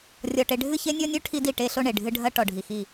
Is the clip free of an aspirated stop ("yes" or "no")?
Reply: no